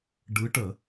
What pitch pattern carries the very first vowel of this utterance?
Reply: rising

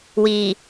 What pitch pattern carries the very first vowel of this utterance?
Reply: low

